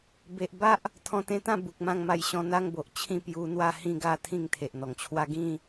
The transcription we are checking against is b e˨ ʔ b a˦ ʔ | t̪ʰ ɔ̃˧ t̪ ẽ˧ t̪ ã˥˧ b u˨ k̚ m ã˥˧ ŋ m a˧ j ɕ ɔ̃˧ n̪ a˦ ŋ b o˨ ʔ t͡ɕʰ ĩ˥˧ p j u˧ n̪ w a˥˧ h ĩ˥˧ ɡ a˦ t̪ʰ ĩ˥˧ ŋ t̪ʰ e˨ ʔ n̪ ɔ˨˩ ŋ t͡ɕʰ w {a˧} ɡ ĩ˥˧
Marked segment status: incorrect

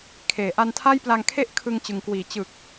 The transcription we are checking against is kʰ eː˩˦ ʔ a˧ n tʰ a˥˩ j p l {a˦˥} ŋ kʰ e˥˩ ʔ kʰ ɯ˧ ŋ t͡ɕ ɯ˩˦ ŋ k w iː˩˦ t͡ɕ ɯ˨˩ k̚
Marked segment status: incorrect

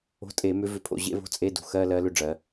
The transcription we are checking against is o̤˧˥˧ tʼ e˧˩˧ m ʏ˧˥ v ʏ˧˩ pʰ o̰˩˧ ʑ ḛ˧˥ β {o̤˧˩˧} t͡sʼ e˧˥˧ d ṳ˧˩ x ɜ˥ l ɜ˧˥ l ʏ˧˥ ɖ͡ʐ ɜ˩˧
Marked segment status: incorrect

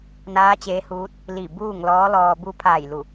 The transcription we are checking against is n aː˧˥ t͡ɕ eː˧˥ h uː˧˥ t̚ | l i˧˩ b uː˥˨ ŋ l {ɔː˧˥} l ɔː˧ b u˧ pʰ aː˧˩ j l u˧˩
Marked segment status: correct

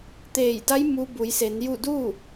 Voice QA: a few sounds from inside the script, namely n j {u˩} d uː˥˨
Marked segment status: incorrect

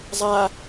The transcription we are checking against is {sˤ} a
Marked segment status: incorrect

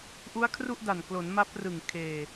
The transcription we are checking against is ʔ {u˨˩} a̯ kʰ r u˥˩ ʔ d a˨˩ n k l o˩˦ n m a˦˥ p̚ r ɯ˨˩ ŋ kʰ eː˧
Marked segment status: incorrect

